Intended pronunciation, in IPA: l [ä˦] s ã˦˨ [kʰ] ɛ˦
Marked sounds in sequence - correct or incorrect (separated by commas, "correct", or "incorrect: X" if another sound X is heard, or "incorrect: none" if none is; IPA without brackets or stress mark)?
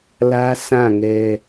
correct, incorrect: ŋ